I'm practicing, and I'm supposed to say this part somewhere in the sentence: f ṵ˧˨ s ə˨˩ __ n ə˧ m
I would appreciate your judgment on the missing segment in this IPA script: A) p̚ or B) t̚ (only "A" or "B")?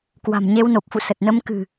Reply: B